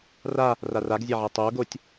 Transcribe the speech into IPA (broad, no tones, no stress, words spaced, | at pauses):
ra | raraɡzʲaʕa tˤoɡotʲ